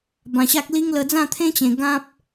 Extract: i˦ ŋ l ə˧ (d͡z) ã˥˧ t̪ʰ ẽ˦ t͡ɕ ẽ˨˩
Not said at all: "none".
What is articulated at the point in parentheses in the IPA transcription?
d͡z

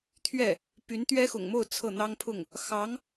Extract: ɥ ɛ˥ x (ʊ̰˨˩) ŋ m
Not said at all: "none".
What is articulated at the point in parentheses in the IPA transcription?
ʊ̰˨˩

